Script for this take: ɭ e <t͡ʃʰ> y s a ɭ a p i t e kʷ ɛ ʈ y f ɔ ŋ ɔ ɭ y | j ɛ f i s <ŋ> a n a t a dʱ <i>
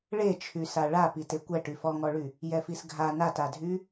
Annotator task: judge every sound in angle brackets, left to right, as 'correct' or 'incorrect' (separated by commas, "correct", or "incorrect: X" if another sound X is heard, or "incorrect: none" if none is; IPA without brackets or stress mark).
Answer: correct, incorrect: ɡʱ, incorrect: y